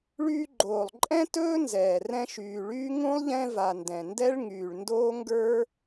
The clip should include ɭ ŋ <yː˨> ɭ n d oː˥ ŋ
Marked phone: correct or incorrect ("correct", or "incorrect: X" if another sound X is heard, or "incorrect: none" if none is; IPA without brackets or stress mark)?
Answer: correct